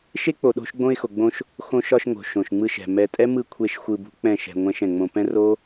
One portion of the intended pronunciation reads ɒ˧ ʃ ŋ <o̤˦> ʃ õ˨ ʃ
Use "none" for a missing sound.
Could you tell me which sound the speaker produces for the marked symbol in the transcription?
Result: o̤˨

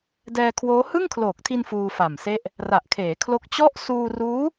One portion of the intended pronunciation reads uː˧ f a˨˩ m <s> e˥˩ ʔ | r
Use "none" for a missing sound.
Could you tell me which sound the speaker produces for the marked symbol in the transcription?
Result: s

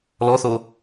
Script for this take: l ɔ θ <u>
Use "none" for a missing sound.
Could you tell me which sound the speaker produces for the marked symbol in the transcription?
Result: o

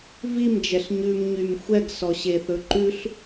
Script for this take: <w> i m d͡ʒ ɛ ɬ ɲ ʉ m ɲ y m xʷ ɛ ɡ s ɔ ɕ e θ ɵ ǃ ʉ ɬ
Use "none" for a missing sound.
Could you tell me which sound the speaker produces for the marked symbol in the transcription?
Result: v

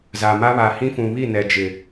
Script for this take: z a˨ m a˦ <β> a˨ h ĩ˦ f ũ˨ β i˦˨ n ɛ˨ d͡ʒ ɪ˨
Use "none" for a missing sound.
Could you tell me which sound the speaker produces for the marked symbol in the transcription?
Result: β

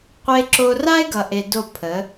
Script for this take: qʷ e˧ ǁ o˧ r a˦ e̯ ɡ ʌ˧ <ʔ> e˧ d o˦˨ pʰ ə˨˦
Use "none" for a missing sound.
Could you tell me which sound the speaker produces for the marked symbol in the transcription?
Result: ʔ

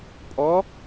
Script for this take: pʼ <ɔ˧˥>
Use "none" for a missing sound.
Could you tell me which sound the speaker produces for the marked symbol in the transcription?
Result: ɔ˧˥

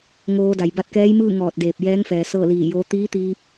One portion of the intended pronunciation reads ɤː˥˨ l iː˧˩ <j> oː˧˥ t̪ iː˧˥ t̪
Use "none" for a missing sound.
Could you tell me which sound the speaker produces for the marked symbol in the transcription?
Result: j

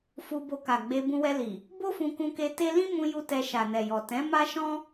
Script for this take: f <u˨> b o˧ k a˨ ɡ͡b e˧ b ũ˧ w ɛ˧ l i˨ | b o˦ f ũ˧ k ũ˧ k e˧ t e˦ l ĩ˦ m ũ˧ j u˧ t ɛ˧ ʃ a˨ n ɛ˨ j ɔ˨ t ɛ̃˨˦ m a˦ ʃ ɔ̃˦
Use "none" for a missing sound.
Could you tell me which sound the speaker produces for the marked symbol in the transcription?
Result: u˧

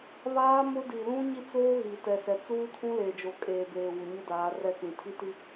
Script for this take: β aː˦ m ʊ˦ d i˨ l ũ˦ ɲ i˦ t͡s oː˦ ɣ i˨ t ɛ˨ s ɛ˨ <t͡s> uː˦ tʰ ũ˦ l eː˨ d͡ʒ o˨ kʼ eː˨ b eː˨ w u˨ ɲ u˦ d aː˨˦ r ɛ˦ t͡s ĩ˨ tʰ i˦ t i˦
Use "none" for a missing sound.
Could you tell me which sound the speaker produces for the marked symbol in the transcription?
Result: t͡s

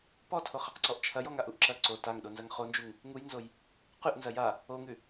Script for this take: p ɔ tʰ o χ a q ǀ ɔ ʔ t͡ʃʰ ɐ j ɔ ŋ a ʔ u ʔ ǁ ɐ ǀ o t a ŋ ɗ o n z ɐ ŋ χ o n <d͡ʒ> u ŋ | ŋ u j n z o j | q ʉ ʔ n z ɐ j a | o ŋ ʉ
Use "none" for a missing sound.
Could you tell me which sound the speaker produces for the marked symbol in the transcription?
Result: d͡ʒ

